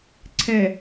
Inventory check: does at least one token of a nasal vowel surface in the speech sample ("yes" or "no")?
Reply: no